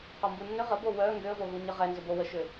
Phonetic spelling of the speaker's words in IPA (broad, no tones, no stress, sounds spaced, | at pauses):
q ɔ m b u nː ʏ ʁ ə b o w œ ŋ ɡ ʏ ə̯ v o ɣ u ɲ ə ʁ ɛ n z ʏ b o w ə ʃ ʏ